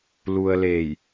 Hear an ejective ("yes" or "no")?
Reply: no